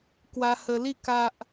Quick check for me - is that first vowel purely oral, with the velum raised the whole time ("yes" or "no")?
yes